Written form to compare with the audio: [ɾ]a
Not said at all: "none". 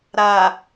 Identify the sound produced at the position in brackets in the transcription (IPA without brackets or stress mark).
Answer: ɾ